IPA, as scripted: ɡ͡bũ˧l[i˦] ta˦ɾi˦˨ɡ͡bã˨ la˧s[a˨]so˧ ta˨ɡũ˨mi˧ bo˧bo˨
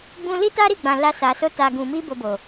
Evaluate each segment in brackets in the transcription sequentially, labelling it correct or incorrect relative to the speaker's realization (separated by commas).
correct, correct